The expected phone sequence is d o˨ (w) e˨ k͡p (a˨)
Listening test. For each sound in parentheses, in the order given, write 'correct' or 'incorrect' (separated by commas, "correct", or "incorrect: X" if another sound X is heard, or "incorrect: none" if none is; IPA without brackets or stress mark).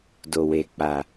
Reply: correct, correct